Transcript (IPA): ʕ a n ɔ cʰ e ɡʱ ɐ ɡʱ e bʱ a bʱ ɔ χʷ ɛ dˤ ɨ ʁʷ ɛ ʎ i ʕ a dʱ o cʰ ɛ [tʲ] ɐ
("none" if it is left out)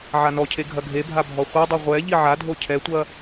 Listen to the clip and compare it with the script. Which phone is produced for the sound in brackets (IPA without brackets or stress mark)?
tʷ